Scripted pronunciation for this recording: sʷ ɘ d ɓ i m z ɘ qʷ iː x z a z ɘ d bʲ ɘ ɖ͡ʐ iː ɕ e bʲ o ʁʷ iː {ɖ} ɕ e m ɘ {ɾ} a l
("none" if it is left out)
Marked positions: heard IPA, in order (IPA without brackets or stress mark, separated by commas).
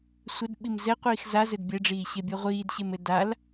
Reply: d, d